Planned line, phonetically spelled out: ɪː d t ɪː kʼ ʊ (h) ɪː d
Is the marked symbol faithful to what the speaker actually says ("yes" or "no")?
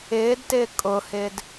yes